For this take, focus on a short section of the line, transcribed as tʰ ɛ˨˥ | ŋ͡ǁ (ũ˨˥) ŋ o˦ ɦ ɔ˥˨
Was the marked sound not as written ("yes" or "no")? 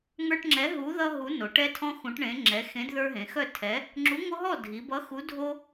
yes